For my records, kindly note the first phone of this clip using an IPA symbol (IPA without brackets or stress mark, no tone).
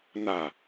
n